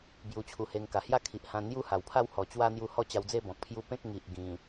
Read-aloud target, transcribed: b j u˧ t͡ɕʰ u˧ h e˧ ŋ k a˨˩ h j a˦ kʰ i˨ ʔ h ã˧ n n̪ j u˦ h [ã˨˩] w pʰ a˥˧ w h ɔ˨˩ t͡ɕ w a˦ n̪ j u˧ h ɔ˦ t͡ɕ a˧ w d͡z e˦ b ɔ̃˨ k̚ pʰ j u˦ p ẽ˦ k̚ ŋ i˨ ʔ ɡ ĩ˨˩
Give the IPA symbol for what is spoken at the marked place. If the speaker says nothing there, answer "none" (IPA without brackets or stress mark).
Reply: a˨˩